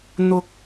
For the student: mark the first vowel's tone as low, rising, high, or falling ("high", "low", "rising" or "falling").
high